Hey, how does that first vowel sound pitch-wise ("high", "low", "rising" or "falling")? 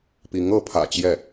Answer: rising